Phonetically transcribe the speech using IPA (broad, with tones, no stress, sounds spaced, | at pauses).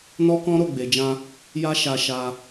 n ɔ˦ k ɔ̃˦ ɾ o˦˨ ɡ͡b e˨ d͡ʒ ã˧ | j a˦ ʃ a˧ ʃ a˧